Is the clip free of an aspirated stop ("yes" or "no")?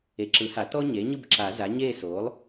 yes